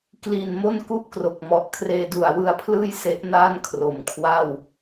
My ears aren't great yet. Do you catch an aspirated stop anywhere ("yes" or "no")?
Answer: yes